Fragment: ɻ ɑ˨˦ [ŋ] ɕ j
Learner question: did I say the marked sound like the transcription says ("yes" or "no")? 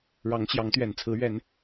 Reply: yes